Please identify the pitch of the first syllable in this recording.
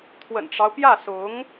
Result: low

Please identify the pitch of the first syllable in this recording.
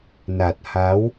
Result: low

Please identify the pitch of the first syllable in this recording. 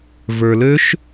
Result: low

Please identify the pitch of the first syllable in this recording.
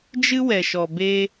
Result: high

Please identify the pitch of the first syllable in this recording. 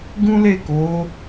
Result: high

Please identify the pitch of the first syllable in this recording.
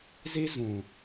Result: high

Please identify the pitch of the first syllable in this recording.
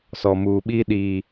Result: low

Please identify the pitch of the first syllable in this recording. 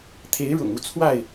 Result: rising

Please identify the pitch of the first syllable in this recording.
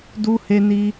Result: high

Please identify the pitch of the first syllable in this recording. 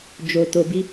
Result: low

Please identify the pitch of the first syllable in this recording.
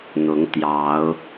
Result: rising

